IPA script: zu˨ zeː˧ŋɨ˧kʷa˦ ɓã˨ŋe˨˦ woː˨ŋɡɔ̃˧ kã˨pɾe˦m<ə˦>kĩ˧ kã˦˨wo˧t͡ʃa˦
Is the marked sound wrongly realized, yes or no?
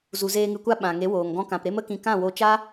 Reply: no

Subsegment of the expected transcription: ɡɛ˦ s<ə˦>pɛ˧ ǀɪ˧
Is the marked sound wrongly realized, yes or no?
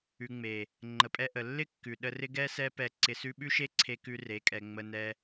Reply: yes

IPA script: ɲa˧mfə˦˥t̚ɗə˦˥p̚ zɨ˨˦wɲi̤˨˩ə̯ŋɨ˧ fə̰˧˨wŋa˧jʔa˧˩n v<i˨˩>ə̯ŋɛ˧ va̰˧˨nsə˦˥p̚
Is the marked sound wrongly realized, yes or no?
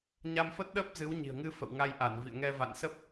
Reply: yes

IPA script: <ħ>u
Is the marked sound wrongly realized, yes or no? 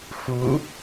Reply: yes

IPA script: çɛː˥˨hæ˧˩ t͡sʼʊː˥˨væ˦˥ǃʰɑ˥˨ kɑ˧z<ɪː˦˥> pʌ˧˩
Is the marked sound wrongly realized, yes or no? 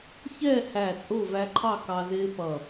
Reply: no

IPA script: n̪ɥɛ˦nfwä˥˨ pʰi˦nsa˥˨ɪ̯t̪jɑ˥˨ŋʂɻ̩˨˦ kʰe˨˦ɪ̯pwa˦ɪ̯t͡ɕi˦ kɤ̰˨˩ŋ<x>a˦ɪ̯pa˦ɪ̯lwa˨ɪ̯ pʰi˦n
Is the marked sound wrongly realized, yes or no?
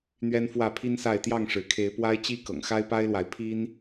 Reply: no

